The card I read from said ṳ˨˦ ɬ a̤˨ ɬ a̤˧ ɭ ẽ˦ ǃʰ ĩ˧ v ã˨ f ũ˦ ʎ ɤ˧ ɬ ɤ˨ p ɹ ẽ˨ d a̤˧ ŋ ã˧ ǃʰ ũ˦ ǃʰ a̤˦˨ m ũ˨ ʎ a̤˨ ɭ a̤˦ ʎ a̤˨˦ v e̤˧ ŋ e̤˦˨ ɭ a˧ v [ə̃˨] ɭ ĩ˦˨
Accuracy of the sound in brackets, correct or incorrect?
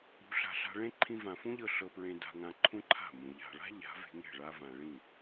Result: incorrect